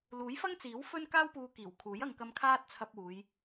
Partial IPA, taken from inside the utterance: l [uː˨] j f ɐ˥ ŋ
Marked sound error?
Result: yes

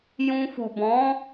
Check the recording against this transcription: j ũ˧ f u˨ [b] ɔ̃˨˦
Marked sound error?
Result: no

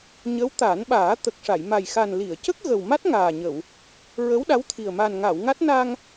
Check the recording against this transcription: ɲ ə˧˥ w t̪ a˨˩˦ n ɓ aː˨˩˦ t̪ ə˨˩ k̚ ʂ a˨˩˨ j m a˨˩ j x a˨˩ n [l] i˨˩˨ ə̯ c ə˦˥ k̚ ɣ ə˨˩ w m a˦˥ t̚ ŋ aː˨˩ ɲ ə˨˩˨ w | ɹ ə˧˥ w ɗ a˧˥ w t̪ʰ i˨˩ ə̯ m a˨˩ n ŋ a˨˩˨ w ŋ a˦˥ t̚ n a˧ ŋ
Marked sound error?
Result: no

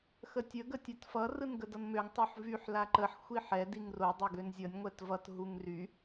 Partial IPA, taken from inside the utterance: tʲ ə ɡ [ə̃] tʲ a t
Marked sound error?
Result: yes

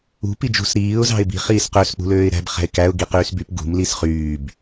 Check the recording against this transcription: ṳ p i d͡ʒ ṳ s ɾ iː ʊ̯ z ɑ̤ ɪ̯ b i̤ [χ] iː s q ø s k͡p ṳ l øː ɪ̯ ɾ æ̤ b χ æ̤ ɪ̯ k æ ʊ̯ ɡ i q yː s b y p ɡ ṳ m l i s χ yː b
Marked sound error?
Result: no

